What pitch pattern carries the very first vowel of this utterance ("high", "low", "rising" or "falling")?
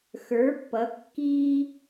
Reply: rising